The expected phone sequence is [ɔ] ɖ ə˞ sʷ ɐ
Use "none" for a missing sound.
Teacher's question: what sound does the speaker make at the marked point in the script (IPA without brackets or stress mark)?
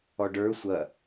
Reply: ɔ